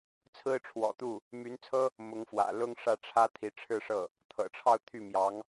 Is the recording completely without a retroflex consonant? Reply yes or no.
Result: no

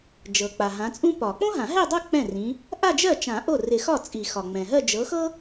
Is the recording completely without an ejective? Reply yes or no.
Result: no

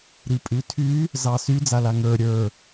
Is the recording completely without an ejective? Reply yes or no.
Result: no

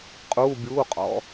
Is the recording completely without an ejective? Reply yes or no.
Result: no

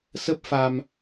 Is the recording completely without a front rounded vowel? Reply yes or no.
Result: yes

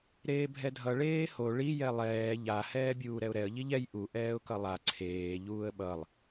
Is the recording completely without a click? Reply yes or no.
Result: no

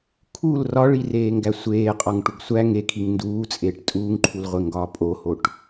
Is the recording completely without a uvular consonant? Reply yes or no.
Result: no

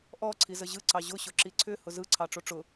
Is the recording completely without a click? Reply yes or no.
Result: no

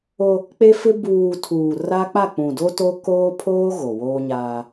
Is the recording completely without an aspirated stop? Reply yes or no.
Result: no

